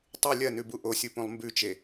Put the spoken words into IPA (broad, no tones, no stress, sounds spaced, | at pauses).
tˤ ʉ lʲ ɐ n ʉ b u ʔ o sʲ u p ũ lˠ m b ʉ t͡ʃ e